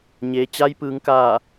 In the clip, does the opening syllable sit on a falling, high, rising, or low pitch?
low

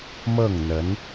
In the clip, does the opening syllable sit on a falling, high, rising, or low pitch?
falling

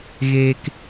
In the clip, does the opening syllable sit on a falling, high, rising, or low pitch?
high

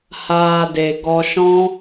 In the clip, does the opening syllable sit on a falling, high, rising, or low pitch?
low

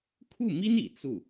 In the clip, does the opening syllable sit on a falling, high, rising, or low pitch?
falling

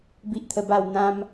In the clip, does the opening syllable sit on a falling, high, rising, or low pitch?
high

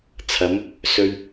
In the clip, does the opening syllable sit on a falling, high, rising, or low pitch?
rising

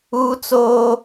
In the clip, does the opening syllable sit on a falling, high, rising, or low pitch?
high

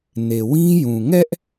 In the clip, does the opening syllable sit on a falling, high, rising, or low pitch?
low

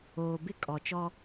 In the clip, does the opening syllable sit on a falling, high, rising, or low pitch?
low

